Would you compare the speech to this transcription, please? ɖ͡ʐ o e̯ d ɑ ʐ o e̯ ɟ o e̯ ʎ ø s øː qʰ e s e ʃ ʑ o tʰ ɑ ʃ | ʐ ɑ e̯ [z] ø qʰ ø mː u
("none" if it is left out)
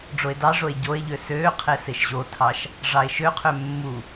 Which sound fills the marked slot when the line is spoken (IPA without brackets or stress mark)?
ʃ